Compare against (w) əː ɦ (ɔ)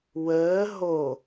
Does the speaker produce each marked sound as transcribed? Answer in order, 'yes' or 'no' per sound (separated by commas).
yes, no